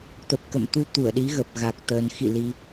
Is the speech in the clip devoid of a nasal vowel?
yes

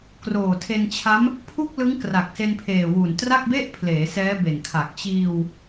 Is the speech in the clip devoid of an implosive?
yes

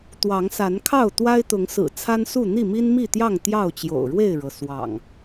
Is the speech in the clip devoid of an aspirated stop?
no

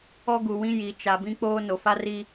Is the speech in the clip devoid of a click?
yes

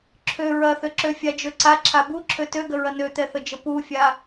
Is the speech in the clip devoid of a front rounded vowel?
no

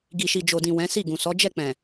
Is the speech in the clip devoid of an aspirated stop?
yes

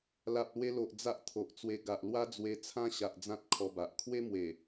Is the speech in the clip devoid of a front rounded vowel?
yes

